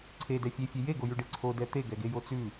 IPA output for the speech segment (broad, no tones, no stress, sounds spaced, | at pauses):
ǀʰ e d ɛ fʲ e fʲ e j e ɡ o j ʉ ɖ e ǀʰ o d ɛ t̪ e ɡ ɛ ɡ e j o t͡s ʉ